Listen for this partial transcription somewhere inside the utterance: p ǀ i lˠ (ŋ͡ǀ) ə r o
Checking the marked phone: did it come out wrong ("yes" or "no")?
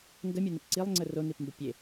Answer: no